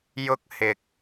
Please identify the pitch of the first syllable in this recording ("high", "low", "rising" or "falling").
high